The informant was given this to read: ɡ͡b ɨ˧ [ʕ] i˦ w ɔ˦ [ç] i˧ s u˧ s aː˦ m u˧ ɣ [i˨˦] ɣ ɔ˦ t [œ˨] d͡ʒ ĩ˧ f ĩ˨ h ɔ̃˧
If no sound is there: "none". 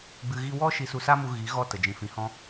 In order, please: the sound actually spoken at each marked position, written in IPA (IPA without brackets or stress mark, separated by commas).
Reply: ɣ, ʃ, i˨˦, ə˨